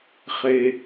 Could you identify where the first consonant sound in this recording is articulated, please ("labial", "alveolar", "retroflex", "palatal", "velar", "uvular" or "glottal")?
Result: uvular